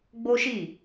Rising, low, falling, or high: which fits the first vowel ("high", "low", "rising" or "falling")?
high